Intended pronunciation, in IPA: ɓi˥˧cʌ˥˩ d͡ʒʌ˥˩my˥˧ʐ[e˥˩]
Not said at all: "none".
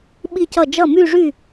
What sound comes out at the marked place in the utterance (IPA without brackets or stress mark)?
y˥˩